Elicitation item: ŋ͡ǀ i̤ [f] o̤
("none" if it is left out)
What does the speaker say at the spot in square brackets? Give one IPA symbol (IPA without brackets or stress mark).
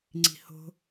h